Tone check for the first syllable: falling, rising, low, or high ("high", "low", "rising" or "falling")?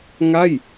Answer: falling